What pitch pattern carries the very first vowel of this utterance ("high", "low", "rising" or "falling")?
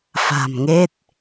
low